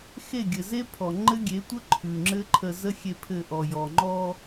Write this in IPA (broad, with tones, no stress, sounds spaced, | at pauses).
x e˦˨ ɡʲ ɘ˨ z e˦ pʰ ɔ˨ ŋ͡ǃ ɘ˦ ɡʲ e˨˦ tʷ ə˦ ǃʰ ʉ˨ ŋ͡ǁ ɘ˦ ǃʰ ə˧ z ə˦ xʲ e˧ pʰ ɘ˧ ʔ ɔ˨ j ɔ˨ ŋ͡ǃ ɔ˧